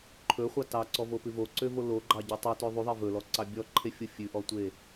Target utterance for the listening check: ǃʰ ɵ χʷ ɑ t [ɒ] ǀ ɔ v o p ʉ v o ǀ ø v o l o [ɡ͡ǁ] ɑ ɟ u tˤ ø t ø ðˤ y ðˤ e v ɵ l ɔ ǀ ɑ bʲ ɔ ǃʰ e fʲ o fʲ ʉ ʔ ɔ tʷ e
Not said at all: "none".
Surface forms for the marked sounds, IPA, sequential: ɑ, ɡ͡ǃ

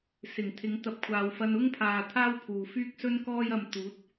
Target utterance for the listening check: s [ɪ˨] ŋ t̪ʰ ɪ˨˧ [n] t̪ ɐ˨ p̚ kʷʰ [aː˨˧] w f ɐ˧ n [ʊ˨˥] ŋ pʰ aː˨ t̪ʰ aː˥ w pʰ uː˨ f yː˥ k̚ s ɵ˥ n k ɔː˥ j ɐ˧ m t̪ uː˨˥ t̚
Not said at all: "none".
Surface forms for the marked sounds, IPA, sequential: ɪ˨˩, ŋ, aː˨, ʊ˥

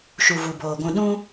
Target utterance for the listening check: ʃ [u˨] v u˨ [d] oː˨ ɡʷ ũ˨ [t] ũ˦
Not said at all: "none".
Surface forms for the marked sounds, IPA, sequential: u˨, b, ɗ

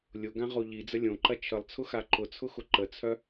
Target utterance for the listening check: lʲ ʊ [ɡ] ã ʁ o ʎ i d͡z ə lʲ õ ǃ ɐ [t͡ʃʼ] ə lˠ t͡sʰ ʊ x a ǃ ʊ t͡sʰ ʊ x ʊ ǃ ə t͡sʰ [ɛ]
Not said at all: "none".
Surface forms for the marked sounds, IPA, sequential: ɡ, t͡ʃʰ, œ

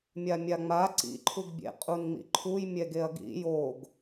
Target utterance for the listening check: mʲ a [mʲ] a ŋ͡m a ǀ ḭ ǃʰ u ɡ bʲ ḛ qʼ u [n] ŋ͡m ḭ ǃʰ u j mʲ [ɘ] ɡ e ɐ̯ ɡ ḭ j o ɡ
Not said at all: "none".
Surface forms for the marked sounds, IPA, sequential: mʲ, n, ɛ

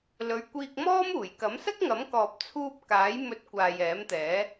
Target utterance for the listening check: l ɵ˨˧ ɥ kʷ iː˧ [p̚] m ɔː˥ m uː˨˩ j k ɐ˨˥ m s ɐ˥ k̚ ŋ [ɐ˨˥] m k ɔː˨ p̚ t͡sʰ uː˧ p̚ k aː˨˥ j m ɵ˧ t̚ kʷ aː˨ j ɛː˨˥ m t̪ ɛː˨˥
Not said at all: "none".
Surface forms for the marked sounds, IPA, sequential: k̚, ɐ˨˥

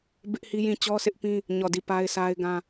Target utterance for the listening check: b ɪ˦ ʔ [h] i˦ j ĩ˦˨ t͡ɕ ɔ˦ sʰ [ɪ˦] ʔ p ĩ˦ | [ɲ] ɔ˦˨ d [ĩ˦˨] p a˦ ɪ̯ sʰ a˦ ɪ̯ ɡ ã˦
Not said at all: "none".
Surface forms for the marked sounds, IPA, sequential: h, ɪ˦, ɲ, i˦˨

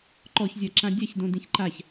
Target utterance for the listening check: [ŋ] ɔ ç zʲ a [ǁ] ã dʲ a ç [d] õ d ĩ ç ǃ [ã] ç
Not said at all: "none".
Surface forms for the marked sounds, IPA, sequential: ǃ, ǁ, d, a

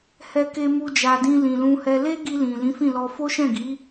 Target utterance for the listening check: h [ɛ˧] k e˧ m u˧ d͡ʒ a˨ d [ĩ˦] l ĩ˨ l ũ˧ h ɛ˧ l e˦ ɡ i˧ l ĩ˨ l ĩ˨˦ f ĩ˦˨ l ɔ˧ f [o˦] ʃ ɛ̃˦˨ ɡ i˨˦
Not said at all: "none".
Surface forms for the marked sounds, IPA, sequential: ɛ˧, ĩ˧, o˦

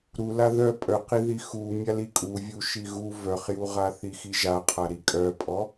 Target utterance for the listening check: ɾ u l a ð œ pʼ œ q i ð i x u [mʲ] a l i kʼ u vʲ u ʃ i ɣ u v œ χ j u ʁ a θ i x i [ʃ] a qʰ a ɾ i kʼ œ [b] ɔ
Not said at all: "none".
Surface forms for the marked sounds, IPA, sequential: mʲ, ʒ, pʼ

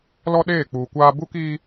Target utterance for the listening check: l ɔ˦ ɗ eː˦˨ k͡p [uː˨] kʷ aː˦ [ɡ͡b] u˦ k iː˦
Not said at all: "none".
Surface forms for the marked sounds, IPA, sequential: uː˨, b

